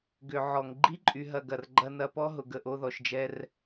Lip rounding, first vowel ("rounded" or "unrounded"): rounded